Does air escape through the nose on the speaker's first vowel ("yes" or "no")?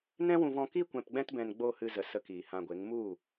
yes